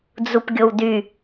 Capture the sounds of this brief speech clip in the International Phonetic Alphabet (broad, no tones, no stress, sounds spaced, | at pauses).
d͡z u p ɡʲ o w d y